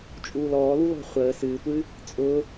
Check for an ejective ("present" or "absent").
present